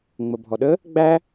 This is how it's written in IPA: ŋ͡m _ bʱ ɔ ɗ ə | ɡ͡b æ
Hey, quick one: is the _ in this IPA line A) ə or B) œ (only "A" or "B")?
A